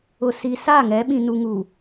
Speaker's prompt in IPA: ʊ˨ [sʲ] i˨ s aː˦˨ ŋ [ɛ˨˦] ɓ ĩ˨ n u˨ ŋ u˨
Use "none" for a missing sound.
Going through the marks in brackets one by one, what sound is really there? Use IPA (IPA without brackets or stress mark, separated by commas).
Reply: s, ɛ˨˦